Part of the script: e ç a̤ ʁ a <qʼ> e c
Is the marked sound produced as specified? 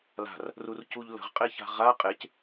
yes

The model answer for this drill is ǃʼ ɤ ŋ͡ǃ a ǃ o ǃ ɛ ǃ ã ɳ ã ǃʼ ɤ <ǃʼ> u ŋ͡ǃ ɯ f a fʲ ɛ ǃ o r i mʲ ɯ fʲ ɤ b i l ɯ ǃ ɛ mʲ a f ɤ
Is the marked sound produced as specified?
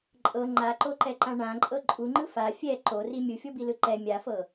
yes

